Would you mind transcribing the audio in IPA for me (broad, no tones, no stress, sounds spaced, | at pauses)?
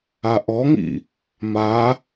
a ʔ ɔ ŋ ḭ | m a